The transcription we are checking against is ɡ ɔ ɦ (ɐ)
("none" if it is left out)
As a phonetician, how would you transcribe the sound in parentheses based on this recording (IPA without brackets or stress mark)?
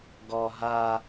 a